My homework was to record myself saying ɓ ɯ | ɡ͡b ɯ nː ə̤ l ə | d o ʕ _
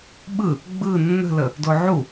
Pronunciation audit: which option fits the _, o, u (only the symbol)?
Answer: u